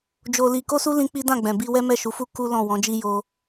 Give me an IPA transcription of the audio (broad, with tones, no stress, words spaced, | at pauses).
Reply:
d͡ʒo˧li˧ ko˦su˦lĩ˧ k͡pi˦ dã˦˨ ɡ͡bɛ̃˨bi˧ wɛ˦mɛ˦˨ʃu˨˦fu˦ ku˦lɔ̃˦˨ wɔ̃˨˦d͡ʒi˦jo˧